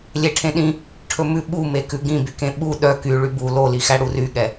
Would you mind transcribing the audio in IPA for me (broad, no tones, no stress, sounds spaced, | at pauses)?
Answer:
lʲ e ʈʰ ẽ ɗ ĩ | ʈʰ ɵ m ʉ ɓ u m e k ʉ ɡ ĩ b y k ẽ ɓ u ɗ œ k y ɭ y b u l o l i x æ ɽ u r y ɠ ɛ